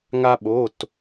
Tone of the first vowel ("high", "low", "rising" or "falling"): high